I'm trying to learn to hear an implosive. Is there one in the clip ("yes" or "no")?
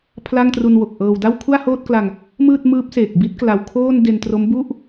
no